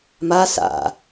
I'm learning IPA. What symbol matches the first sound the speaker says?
m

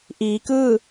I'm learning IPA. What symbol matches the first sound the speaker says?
ʔ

